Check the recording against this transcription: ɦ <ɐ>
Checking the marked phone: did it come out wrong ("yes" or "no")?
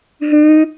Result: yes